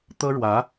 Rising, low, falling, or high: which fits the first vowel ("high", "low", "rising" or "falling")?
high